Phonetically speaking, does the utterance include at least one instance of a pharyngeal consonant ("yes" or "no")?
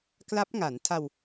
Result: no